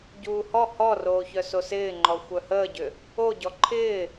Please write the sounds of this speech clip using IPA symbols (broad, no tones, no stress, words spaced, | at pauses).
ɟuːhɔ hɔroːçœ sosɪːŋ͡ǃɔ xʷœhəːɟʏ | oɟɔ ǃʰɪː